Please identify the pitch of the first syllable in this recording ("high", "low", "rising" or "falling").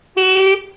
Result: high